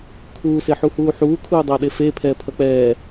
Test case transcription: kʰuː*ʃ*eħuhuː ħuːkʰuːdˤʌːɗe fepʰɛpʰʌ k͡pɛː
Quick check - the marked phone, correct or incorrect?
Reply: incorrect